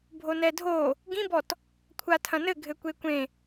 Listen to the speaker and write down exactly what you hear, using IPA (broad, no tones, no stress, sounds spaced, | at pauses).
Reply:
bʱ o n ɛ dʱ o | ɡ ĩ b ɔ t | kʷʰ a tʰ ɐ̃ n ɘ ɡʱ ɘ kʷ e kʷ ẽ